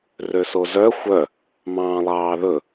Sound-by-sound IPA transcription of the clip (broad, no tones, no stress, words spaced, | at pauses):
røsozœ xʷœ | mɑ̃ːlˠɑːðɵ